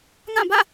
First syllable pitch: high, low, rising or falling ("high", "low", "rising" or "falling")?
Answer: falling